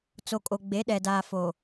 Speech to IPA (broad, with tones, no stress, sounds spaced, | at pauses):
t͡s o˨ kʼ o˨ ɡ͡b e˨˦ ɗ ɛ˨ d aː˨ f o˨